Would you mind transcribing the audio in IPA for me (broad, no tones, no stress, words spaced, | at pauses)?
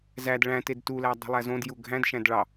zæd ɭæ̃ted tulæ dˤi̤lˠæzõdju ɡʱæ̃dʃæ̃d ɭɑ